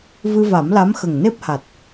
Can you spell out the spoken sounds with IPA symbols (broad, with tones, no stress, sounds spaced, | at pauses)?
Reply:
v ɨ˧ v a˨˩˦ m l a˧˥ m x ə˨˩ ŋ n e˦˥ p̚ h a˨˩ t̚